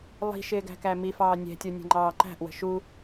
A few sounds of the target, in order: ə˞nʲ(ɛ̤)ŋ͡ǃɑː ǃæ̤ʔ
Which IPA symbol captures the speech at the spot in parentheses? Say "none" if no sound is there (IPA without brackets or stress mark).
ɛ̤